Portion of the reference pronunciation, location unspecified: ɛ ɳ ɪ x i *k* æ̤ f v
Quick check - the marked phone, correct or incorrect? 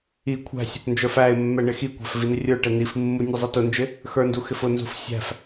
incorrect